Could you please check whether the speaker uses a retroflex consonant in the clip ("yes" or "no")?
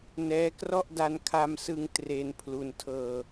no